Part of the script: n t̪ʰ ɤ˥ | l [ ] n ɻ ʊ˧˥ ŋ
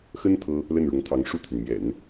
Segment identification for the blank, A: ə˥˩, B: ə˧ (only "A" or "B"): A